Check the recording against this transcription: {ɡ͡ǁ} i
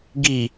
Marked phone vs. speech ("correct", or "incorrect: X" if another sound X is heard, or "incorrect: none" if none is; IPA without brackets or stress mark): incorrect: ɡ